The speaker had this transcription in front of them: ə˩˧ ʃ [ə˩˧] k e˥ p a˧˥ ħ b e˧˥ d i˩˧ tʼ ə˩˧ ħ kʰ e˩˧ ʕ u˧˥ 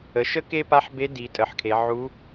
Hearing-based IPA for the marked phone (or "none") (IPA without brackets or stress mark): ə˥